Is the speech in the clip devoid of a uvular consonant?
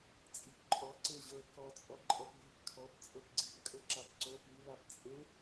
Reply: yes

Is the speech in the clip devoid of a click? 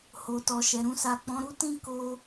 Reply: yes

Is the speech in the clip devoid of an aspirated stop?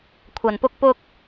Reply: no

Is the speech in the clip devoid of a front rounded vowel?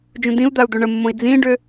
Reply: no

